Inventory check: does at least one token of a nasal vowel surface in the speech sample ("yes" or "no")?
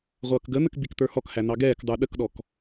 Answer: no